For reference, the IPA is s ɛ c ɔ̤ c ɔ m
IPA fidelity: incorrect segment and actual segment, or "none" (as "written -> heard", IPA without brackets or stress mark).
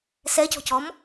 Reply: none